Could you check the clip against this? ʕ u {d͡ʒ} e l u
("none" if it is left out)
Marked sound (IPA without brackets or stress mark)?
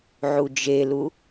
d͡ʒ